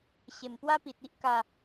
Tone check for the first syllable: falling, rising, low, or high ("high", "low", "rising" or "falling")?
low